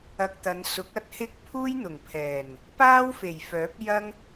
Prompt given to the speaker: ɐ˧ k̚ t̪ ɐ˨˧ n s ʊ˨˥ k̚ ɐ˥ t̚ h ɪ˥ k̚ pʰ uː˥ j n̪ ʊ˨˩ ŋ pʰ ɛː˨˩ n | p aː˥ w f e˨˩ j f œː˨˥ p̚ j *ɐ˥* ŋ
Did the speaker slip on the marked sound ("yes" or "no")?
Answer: no